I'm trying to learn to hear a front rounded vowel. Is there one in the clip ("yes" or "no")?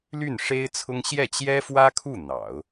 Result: yes